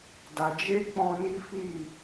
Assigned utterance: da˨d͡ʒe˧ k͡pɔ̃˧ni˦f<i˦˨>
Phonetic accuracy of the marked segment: correct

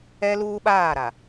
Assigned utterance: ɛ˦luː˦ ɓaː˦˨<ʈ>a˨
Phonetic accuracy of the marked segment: incorrect: ɾ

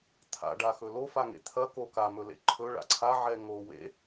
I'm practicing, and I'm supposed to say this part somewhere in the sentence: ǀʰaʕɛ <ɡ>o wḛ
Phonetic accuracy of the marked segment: incorrect: ŋ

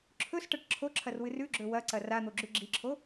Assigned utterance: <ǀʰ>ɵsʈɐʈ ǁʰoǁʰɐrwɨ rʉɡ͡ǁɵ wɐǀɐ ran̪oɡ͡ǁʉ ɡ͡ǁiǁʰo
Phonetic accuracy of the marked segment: incorrect: ǁʰ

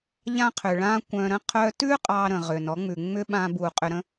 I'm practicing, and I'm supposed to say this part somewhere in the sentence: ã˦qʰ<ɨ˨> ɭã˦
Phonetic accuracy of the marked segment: incorrect: ʏ˨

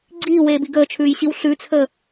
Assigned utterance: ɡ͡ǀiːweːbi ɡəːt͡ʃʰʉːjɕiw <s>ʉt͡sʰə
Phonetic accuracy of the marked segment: incorrect: ɬ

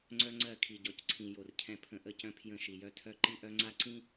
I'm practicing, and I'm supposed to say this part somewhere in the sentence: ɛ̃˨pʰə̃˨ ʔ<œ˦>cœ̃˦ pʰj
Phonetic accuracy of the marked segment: incorrect: ə˦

